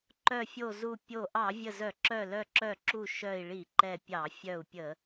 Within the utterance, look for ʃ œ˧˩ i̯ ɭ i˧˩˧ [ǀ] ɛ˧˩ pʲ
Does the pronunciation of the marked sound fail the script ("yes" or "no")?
yes